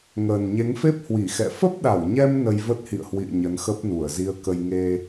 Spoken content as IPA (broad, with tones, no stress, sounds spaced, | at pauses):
ŋ əː˨˩ n ɲ e˨˦ ŋ f e˦˥ p̚ h w i˧˩ x ɛ̰˧˨ f ə˦˥ p̚ ɗ a˧˩ w ɲ ɛ˧ m n ə˧ j v ə˦˥ t̚ h ḭ˧˨ ə̯ h w ḭ˧˨ ə̯ ɲ ə˨˦ n x ə˦˥ p̚ n u˧˩ ə̯ z i˧ ə̯ k ə˧ j ŋ e˧